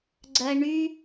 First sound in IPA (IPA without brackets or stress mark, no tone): ɡ͡ǀ